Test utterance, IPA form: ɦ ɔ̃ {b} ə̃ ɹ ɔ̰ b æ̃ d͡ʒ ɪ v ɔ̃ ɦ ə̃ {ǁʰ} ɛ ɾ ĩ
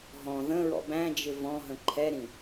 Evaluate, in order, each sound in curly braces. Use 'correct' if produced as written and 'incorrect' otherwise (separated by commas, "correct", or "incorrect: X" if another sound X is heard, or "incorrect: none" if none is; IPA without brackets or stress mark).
incorrect: ð, incorrect: ǃʰ